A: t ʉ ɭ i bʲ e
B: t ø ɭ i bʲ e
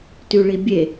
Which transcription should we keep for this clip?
A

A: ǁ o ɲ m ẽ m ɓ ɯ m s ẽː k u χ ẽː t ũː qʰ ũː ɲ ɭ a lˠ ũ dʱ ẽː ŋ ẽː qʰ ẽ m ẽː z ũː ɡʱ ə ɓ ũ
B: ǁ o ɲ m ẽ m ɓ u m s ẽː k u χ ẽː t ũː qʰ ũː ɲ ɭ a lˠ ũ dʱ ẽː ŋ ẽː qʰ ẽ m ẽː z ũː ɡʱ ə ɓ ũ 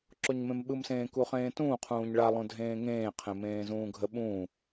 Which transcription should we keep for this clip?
A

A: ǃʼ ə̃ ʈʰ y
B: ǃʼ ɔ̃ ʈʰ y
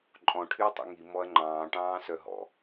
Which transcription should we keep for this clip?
B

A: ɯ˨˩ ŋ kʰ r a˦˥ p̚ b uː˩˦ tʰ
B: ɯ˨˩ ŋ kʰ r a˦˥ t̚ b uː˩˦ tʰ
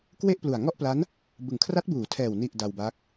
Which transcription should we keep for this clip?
B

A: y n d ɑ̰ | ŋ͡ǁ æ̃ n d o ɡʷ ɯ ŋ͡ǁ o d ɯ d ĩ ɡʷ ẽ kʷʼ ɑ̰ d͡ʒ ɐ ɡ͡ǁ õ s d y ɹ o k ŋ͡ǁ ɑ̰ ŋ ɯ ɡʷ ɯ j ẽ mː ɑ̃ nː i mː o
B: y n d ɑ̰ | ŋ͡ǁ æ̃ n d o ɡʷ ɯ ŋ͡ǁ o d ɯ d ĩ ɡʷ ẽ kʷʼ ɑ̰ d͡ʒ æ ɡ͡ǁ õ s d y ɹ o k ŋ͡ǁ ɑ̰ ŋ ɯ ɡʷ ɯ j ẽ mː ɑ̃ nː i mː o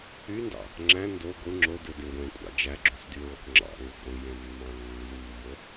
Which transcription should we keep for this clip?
B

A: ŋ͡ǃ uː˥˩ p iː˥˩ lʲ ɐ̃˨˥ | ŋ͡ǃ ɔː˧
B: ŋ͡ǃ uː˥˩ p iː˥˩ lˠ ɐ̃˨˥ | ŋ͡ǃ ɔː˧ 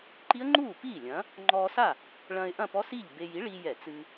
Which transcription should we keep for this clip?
A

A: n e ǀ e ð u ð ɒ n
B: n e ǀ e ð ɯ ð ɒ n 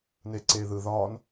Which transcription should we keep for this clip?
B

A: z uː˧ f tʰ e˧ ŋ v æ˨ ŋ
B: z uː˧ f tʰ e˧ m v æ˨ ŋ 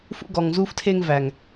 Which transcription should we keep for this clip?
A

